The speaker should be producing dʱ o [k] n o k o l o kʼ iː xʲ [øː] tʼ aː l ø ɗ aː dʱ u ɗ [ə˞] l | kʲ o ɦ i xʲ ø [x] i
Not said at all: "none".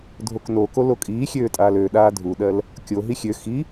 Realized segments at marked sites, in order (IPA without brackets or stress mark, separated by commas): k, øː, ɜ, x